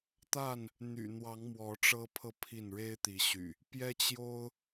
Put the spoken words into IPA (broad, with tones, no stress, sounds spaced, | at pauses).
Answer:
t̪ a˥˨ n | n̪ y̰˨˩ n̪ w ɑ˨˦ ŋ m w ɔ˨˦ ʈ͡ʂ ɤ˦ pʰ ɤ˥˨ pʰ i˥˨ n ɻ e˦ ɪ̯ t̪ i˨˦ ɕ y̰˨˩ | p j ɛ˦ t͡ɕ j o˦ ʊ̯